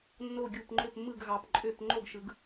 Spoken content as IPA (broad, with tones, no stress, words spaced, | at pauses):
nːo˥˨ɡʲu˥˨p ŋ͡ǃø˥˨pmːɯ˥˨ɡ ɣɑ˨˦pǃʼø˥˨p ŋ͡ǃo˥˨ɡʃɯ˨˦ɡ